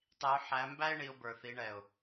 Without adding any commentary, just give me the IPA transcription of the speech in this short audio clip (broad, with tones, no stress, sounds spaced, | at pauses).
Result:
tˤ i˨˦ ʊ̯ ħ æ˨˦ m b æ˥ ɪ̯ ɳ i˨˦ ʊ̯ b ə˞˨˩ θ i˨˦ ɳ ɛ˨˩ ʊ̯